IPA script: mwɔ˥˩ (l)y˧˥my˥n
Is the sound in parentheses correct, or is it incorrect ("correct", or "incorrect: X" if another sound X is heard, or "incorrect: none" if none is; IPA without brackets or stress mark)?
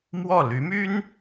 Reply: correct